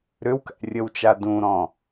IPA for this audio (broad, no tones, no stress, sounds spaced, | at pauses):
ɾ ʏ w k æ̰ rʲ ə w t͡ʃ a d ũ ɾ ɔ̃